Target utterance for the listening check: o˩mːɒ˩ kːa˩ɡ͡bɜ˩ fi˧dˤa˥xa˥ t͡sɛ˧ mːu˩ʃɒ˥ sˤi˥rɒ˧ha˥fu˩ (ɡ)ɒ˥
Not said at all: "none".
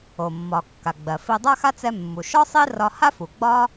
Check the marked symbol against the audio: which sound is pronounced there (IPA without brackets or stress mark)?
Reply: ɡ͡b